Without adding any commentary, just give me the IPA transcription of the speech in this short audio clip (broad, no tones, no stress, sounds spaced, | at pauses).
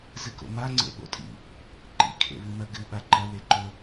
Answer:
z ɨ k o̰ m a ŋ͡ǀ ḛ ɓ o̰ tʼ ḭ | ǃ ḭ kʰ ḛ β ɨ m ɐ ɡ ɨ ɓ a ǃ ɐ w e ǃ ɵ